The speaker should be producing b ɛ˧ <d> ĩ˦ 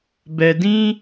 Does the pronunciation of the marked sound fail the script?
no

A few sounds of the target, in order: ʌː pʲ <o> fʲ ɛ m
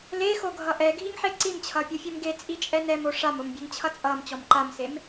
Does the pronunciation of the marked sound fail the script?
no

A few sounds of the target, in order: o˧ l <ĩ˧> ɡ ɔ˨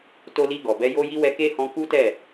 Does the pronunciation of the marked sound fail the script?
yes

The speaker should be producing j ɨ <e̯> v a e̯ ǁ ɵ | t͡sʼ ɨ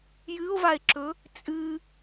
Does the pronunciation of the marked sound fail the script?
yes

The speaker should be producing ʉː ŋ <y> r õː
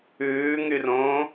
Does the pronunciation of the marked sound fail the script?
no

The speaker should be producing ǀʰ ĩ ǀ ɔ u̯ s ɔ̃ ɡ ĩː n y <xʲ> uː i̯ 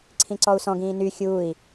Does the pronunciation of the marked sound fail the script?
no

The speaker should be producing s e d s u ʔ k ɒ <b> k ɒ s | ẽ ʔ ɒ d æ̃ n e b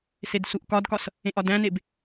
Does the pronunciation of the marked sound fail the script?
yes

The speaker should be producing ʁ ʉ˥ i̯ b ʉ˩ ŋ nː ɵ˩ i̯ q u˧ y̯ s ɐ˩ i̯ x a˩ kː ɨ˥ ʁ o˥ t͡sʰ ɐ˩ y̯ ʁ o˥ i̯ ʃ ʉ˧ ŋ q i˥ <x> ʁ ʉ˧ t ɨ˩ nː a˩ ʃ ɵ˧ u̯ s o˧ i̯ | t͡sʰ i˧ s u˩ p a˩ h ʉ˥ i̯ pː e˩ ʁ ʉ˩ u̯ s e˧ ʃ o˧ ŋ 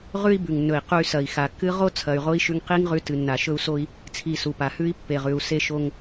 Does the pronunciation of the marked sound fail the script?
yes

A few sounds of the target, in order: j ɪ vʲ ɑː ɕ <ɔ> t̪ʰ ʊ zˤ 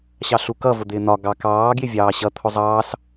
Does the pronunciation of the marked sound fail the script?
yes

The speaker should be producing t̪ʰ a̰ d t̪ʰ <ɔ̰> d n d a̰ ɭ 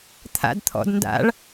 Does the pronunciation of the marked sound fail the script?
no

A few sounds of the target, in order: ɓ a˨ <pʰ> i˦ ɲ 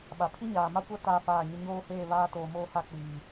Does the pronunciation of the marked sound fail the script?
no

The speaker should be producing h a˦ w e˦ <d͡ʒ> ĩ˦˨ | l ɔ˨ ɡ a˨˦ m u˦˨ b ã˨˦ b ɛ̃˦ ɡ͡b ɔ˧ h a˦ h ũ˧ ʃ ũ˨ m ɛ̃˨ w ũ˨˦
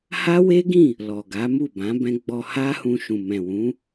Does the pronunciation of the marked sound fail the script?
yes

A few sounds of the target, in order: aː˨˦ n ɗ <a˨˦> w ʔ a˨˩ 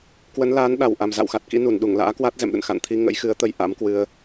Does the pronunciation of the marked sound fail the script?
yes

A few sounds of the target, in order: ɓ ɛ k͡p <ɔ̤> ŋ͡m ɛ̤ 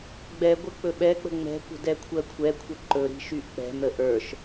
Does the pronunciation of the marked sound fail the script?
yes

